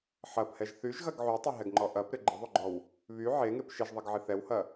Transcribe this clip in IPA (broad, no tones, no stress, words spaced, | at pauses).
ħɐphɛʒ θyʒɣɐɡ ʕytˤɪɦɛɡŋ͡ǃɔ ʔɐpɾɪ ɡ͡ǃɪðˤyɡ͡ǃɔw | βy ʕeŋep ʃɪʒðˤɐɡʕɪ θɛwhɐ